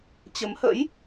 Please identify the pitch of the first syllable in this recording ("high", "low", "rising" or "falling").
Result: rising